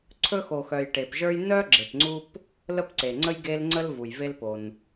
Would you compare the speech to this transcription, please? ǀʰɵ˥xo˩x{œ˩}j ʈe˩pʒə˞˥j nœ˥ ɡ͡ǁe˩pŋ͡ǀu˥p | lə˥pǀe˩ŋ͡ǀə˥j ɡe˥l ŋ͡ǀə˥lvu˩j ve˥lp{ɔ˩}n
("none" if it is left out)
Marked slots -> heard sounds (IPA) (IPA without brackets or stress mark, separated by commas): œ˩, o˩